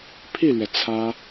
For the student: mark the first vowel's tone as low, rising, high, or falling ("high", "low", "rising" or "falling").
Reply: falling